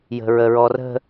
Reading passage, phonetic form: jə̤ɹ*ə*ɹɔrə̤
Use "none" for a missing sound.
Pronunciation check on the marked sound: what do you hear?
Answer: ə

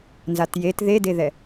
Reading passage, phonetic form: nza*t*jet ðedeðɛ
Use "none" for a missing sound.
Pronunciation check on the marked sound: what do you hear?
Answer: t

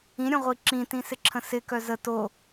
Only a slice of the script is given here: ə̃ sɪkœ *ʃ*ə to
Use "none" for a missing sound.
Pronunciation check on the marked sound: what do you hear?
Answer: z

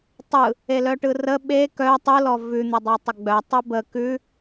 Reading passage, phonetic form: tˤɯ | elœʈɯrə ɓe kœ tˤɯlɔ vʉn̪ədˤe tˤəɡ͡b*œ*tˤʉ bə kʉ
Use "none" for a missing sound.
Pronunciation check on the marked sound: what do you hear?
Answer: œ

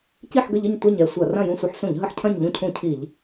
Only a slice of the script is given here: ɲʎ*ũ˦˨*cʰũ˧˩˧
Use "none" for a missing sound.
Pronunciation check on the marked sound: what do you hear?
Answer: ũ˦˨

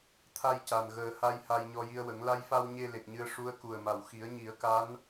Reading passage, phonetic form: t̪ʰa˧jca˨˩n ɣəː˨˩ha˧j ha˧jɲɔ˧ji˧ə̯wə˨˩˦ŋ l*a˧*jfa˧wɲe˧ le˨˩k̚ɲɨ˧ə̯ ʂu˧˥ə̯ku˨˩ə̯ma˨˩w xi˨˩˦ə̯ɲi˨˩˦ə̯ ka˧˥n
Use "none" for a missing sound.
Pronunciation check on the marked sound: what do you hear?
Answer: a˧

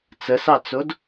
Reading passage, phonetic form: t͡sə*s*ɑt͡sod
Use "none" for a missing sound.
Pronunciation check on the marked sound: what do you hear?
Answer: s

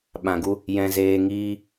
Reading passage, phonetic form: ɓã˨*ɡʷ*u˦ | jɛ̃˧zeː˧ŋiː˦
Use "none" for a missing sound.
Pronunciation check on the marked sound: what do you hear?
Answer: ɡ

